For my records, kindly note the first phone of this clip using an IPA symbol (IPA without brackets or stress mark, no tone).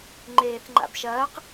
ŋ͡ǃ